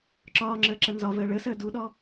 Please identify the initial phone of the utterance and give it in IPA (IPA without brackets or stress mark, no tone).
ǁ